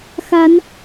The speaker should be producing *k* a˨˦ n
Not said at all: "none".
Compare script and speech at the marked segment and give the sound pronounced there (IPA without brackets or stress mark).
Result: x